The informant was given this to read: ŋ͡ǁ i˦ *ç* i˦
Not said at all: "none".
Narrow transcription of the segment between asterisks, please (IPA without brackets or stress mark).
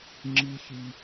ç